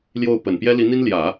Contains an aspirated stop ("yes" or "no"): no